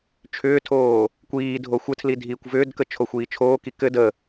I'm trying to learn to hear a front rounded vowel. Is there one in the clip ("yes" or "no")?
yes